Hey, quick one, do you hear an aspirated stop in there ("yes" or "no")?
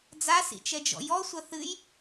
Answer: no